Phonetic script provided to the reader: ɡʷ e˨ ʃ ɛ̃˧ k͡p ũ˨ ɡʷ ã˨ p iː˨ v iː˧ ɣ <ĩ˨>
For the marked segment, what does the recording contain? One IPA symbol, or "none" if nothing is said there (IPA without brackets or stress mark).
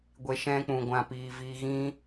ĩ˦